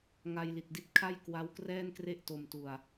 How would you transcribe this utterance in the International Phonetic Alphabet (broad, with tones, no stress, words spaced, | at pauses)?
ŋa˧jli˨˩t̚di˥˩t̚ kʰa˥˩jkwa˦˥wkrɛː˥˩nkre˥˩ʔ to˧mtu˧a̯